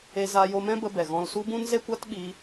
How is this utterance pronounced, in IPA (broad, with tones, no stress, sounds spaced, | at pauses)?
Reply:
e˧ z a˧ j o˧ m ɛ̃˦ b ə˧ b ɛ˨ ɣ ɔ̃˧ l s u˦ b ũ˦ n z e˦ kʷ a˦ t ɓ iː˧